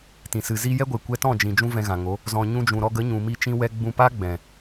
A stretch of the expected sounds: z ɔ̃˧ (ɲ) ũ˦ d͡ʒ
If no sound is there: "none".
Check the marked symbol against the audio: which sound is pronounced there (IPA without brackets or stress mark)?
ɲ